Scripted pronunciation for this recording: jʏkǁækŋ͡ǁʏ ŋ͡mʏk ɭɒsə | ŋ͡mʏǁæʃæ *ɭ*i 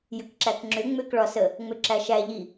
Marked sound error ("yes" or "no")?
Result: yes